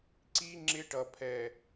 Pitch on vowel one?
high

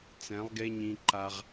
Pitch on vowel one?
rising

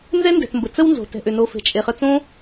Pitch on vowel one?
high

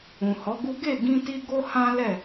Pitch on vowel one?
low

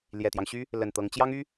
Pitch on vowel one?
low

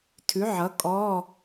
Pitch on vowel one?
rising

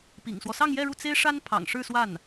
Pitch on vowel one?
low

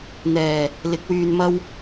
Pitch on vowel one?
low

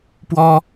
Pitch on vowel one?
high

